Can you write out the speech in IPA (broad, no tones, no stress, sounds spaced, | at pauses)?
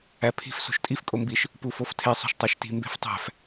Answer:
æ pʰ i̤ f s o̤ ʃ tʼ i f kʼ o m b i ʃ | p u f o f tʰ e sˤ o̤ ʃ tˤ æ ʃ t i̤ m b e̤ f tˤ æ̤ f